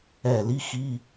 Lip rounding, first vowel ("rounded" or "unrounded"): unrounded